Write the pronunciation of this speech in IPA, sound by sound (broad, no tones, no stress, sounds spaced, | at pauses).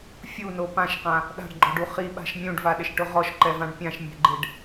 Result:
fʲ u n o p ã ʃ q ã | ɗ a̤ ɖ ɡ͡ǃ ɔ ɖ u χ i ɓ a̤ ʃ mʲ ũ ɖ v a ɗ ɪ ʃ ʈ ʊ ʁ ɔ ʃ ǃ ɛ v ã ɖ pʲ ã ʃ mʲ ɛ̤ ɡ͡ǃ ɪ ɖ